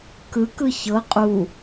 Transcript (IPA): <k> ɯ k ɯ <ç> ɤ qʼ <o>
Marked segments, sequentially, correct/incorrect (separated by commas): correct, correct, incorrect